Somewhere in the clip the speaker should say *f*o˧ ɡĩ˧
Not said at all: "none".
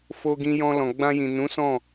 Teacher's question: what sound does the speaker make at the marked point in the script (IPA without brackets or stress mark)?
f